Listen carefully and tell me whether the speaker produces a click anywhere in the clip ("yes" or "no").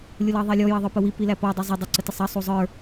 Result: yes